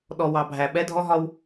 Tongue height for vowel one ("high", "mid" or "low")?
mid